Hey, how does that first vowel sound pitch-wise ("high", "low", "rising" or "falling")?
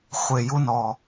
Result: low